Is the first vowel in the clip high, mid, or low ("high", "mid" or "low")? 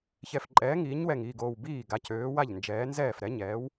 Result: mid